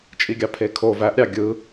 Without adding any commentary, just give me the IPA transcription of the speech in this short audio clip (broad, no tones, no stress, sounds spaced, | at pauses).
t͡ʃʼ i ɡʲ ɑ pʰ e kʰ o v æ ʔ ɾʲ ɑ ɡʲ ɯ